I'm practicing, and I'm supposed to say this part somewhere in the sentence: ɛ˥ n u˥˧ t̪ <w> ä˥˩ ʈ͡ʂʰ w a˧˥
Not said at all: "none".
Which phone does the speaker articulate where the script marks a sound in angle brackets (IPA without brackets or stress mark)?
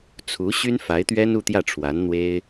j